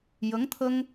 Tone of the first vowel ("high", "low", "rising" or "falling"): rising